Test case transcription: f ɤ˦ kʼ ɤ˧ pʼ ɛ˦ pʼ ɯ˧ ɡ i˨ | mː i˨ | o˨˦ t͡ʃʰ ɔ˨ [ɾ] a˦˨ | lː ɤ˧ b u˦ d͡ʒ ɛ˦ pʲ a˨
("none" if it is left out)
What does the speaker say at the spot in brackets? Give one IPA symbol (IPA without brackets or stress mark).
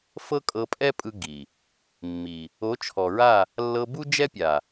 ɹ